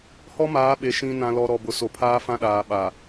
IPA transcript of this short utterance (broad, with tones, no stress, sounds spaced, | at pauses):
h ɔ˦ m aː˨˦ ɓ e˨ ʃ ĩ˨ n ã˨ l ɔ˨ ɾ ɔ˨ b ʊ˨ s o˨ pʰ aː˦ f ã˦ ɗ aː˨ ɓ a˨